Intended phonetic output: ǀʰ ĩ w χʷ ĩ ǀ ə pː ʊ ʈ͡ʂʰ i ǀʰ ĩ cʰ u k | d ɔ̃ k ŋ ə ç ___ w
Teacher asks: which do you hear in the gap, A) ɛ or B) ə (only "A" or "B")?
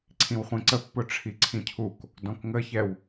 A